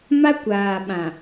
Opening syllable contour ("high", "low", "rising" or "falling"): high